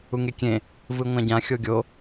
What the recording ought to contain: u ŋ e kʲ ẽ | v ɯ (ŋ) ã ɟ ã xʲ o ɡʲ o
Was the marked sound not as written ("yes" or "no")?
yes